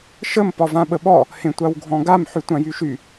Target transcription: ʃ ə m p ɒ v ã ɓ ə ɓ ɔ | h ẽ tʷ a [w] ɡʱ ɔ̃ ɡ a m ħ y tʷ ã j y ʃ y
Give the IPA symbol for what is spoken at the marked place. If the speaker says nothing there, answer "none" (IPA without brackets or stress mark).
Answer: w